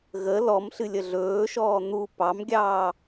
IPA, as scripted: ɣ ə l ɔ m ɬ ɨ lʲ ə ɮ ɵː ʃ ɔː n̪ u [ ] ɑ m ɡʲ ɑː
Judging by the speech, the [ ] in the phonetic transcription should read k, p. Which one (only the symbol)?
p